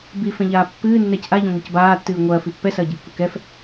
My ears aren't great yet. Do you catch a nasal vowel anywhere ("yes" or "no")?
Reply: yes